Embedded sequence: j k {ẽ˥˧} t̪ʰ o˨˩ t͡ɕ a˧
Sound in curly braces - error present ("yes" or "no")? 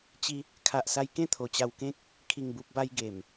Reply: no